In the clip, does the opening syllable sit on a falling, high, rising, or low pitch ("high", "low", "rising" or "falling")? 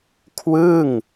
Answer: falling